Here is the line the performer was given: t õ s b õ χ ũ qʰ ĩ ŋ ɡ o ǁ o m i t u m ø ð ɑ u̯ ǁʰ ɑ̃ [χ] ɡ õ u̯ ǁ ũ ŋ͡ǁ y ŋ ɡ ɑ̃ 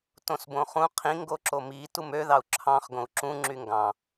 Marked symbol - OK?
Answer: yes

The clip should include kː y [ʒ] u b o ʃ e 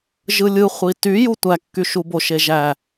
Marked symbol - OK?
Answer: no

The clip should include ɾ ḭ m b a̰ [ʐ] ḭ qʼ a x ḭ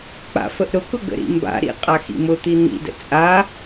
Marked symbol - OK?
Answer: no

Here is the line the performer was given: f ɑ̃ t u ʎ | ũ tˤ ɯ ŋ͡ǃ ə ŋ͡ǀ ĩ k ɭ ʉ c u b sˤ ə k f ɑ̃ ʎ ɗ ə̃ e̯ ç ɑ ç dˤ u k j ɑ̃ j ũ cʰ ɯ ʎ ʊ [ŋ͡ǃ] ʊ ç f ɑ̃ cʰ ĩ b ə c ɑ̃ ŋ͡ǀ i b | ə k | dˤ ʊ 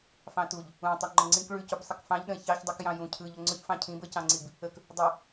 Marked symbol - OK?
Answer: no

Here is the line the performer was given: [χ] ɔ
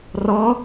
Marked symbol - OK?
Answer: no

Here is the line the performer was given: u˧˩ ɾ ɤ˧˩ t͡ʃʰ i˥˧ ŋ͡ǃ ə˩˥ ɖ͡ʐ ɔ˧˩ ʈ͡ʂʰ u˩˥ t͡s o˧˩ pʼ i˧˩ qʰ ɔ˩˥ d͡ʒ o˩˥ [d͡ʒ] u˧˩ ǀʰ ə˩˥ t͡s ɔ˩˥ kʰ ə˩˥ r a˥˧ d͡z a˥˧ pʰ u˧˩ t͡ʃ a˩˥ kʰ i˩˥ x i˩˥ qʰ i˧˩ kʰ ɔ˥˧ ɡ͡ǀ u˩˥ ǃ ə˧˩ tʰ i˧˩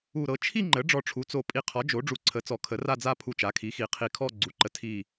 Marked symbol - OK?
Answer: no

